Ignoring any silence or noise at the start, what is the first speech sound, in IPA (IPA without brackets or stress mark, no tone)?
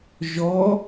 ʒ